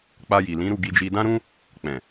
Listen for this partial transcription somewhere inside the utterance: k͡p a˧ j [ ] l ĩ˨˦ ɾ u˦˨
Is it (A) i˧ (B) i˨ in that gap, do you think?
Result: B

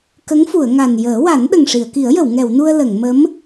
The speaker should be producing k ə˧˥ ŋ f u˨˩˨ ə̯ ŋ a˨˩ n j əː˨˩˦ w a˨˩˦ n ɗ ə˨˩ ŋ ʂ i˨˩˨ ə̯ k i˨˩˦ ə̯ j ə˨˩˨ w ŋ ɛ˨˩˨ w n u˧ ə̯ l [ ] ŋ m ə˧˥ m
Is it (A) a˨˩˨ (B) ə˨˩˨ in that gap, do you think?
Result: B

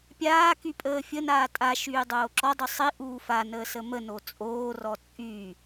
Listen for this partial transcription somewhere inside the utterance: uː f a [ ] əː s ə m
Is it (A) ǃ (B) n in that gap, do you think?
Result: B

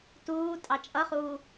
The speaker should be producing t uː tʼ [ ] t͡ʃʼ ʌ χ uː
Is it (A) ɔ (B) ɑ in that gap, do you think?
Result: B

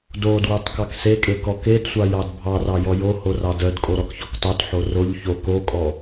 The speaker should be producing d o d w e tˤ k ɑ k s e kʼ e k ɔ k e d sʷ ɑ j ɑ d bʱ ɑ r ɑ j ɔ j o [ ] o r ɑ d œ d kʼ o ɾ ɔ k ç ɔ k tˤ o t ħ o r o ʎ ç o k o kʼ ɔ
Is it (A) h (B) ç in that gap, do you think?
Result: A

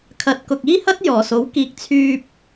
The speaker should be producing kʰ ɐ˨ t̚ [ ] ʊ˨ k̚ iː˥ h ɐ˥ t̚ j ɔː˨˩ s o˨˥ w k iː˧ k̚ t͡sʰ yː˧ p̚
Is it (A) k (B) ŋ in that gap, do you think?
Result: A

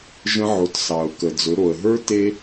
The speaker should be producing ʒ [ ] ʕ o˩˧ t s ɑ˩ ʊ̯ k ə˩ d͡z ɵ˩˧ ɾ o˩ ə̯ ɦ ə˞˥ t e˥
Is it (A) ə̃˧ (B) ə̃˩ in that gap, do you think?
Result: A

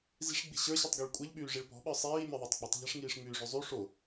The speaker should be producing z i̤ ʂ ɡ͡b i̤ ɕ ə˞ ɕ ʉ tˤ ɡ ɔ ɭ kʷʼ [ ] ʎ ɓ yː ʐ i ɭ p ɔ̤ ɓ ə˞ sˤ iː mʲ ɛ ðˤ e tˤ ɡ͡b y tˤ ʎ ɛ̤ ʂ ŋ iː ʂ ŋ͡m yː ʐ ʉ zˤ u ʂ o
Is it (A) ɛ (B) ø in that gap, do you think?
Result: A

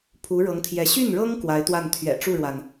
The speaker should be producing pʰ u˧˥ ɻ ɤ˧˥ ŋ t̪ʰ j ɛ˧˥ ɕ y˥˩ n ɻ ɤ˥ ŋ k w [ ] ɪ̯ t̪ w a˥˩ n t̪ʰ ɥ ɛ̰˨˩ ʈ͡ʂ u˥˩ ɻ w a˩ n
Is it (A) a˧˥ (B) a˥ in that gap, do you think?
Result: A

